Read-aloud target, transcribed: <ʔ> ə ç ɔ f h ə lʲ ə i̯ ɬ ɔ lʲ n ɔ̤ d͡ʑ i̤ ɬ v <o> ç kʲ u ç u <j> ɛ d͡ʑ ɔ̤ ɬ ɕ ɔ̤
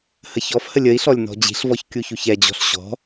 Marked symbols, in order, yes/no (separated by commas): no, no, no